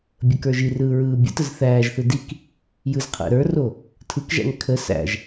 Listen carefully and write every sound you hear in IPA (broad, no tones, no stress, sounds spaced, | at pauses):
bʲ ə k ə˞ ʒ i r ɯː ɹ ɯː bʲ ə̰ t ə z θ æː ʒ θ ɯ d i k | j ɯ z qʰ æ̰ ɾ ə˞ r o | tʰ ɯ k ʒ æ̰ ŋ kʰ ə s æ̰ ʒ